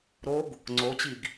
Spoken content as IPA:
ɾoɡ | ŋ͡ǀot͡ɕiɡ

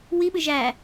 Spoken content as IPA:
wiɓɨ ʒæ

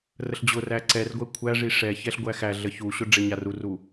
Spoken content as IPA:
rəɬd͡ʑʊræ ǀɛrɡʷɛ kʷʰæʐi ʂɛ çɛɬɡʷæxæɮə çuɕʊ ɖ͡ʐeɲaruru

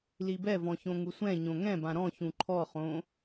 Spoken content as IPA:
libɛvɔ̃ çõŋusʷɛ̃ ɲõŋɛ̃ bãɾɔ̃ çũǃʰɔχõ

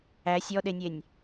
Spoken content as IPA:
æ sʲɔɗenʲenʲ

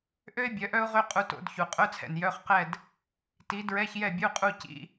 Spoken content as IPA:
ʔø˥ɪ̯ bʲœ˨˥ʔœ˥ʊ̯ʁø˥ qʼu˧to̰˧˥˧dçu˩ qʼœ˧˥˧t͡sʰɛ̰˩n jœ˧˥˧χqɛ˥˨d | ti˨˥ dɹɛ˧˥˧çjɛ˥˨bʲu˧˥˧qʼu˥˨ cḭ˧˥˧

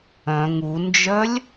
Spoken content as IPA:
œ̃ ŋund͡ʒœlʲ

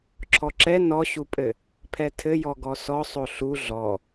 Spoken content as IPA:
ǁʰɔǁɛ nɔɕupʼɘ | pʰɛtʰɘjɔ ɡɔsɔ sˤoɬu ɮɔ

